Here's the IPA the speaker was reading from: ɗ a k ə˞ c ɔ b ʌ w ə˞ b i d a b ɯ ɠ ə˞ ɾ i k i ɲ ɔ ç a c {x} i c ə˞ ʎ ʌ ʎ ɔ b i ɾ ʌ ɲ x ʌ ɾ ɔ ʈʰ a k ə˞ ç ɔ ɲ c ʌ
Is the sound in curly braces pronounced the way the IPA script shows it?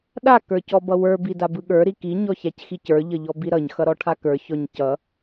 yes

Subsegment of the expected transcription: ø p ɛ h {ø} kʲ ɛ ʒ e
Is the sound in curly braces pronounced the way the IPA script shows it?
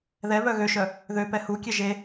no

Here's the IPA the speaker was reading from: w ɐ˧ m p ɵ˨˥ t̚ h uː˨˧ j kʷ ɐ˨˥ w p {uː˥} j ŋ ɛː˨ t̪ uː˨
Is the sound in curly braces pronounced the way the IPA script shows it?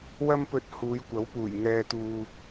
no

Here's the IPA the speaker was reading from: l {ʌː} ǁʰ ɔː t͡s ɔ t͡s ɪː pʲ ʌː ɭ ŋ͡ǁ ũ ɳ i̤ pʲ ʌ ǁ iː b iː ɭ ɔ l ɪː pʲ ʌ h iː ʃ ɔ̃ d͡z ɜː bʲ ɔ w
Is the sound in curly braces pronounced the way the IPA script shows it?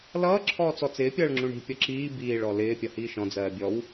yes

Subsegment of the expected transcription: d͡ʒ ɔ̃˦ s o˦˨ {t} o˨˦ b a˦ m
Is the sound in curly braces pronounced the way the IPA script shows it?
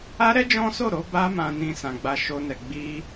no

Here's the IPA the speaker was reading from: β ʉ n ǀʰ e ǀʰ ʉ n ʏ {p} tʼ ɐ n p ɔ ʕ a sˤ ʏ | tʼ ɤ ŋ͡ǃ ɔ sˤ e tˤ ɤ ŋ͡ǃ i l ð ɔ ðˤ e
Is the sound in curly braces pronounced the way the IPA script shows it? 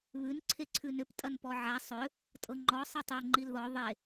yes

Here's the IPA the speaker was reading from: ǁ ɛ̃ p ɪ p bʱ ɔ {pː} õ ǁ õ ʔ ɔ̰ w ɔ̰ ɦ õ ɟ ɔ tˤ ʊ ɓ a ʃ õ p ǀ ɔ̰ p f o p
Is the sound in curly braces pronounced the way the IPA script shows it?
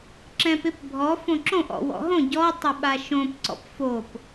no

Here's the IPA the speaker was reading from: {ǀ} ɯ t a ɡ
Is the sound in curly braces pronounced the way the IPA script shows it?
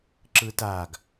no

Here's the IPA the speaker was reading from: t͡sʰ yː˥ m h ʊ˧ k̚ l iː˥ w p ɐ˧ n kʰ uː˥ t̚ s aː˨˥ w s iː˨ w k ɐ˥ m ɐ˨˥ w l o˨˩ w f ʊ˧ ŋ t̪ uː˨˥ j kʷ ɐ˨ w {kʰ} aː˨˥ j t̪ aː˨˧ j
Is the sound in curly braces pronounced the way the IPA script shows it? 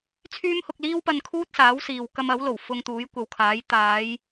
yes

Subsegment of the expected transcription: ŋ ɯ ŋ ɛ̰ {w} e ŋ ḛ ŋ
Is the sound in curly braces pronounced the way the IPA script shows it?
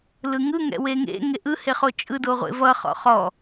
yes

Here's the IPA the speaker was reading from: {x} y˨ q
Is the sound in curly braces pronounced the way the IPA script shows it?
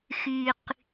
yes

